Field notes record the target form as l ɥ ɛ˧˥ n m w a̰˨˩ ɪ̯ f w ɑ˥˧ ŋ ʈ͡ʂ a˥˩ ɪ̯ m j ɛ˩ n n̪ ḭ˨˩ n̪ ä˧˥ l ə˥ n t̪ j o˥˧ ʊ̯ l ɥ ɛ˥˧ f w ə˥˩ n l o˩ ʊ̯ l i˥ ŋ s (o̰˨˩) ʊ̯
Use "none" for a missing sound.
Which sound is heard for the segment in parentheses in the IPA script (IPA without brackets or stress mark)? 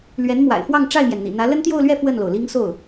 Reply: o˥˩